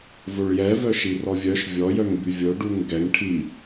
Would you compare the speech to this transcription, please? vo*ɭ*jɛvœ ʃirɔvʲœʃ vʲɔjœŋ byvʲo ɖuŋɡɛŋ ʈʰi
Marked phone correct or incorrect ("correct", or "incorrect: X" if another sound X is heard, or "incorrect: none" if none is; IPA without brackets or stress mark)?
correct